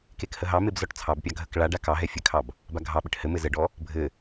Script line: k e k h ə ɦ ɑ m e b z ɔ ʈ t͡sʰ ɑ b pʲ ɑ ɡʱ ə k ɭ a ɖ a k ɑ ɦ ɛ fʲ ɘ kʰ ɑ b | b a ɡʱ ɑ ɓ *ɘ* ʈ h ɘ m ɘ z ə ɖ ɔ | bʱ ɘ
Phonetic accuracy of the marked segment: correct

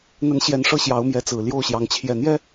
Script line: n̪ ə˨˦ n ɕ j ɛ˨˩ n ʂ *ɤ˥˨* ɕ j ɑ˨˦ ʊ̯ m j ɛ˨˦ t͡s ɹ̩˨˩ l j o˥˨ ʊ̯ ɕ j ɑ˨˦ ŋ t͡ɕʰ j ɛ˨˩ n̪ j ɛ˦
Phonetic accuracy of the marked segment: correct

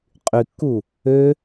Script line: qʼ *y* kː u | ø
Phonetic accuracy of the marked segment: correct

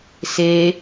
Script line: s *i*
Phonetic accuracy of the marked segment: incorrect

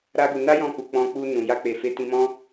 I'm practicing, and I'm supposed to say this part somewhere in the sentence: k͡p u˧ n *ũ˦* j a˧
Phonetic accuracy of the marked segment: incorrect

